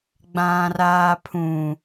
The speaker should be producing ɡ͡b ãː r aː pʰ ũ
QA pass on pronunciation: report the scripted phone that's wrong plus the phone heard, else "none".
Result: none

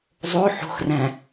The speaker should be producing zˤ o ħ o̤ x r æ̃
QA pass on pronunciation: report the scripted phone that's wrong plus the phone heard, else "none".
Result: none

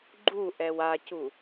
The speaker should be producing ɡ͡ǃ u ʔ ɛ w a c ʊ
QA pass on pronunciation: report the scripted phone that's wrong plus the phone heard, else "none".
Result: ʊ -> u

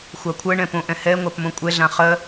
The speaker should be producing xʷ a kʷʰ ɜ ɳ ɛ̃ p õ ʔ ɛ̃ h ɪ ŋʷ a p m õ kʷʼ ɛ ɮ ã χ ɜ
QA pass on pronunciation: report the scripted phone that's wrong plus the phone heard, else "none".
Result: ɪ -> ɛ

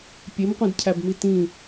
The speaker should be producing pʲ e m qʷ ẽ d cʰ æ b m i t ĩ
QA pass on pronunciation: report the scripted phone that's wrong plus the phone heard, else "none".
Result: none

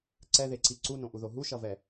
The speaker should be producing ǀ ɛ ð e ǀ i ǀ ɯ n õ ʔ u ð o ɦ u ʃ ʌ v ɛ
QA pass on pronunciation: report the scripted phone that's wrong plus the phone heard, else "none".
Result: ɯ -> u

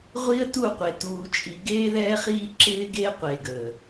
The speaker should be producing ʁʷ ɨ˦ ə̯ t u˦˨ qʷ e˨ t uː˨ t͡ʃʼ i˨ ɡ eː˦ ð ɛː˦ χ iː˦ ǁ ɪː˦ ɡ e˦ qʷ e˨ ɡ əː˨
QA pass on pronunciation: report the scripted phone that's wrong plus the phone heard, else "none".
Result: ɨ˦ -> i˦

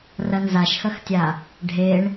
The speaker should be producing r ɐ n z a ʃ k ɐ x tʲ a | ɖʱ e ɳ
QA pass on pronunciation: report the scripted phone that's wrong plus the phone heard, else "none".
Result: k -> x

